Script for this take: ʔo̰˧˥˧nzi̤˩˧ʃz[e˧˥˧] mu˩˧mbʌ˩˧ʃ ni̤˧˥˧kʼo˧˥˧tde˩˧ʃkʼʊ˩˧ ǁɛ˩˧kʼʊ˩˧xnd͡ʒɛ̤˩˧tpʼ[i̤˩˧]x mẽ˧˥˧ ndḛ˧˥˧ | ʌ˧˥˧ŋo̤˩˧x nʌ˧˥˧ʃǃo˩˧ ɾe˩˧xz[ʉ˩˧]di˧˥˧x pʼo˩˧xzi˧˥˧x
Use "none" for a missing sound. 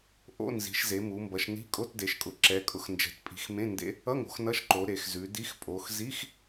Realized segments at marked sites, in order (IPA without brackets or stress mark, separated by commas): e˩˧, i̤˩˧, ʉ˩˧